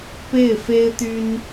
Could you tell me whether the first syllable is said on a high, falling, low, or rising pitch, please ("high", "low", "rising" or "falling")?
falling